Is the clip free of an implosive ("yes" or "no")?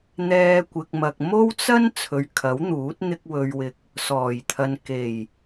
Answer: yes